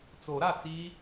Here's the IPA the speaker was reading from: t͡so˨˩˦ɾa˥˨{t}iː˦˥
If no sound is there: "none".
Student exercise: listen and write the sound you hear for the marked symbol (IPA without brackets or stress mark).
t͡s